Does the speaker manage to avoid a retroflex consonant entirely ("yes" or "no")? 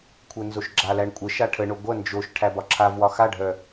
no